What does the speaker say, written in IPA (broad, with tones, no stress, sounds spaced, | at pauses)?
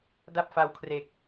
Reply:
d a˥˩ p̚ f a˧ w kʰ r e˨˩ k̚